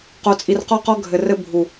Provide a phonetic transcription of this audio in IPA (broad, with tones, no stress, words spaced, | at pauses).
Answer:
qo˨t͡sʼi˨r qɔ˦qɔ˦ɡʱɘ˨rɘ˦ bʱu˨